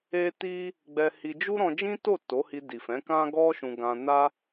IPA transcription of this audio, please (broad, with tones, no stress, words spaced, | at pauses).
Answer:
e˦ ti˦ | ɡ͡bɛ˧hi˧ d͡ʒu˦ɾɔ̃˧d͡ʒĩ˦to˦˨ to˨˦hi˧di˨fɛ̃˨˦ kã˦ɡɔ˦ʃũ˧ ɡã˧na˦